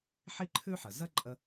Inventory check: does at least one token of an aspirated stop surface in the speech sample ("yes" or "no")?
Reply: yes